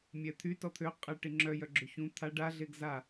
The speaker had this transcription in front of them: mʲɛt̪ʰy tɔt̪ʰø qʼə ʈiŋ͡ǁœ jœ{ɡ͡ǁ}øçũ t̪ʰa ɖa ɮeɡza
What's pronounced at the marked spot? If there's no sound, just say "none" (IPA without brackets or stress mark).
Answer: ɡ͡ǁ